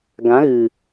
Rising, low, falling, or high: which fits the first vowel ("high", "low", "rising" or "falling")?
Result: rising